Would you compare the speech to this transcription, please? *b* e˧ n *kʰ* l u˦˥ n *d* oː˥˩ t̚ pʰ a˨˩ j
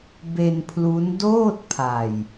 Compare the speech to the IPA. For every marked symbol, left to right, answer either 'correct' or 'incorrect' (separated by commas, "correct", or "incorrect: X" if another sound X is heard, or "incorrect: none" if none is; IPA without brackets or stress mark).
correct, incorrect: pʰ, correct